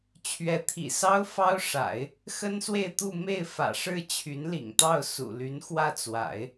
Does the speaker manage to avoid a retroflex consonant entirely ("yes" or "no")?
no